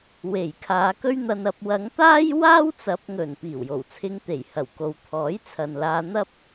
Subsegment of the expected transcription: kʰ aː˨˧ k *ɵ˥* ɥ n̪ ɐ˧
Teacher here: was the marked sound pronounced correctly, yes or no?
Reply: yes